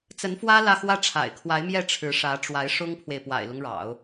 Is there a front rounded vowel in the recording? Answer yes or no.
no